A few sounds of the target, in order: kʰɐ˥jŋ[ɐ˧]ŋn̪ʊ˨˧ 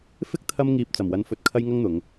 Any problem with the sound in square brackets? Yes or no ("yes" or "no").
yes